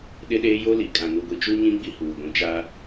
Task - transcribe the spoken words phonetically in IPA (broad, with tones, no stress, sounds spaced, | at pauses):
ɗ ɪ˦ ɗ eː˦ j o˦ l i˨ kʼ ã˨ n u˨ ɡʷ i˨ t͡ʃ u˦ ɲ ĩ˦ ɡ͡b i˦ h uː˨ ɡʷ ĩ˨ t͡ʃ a˦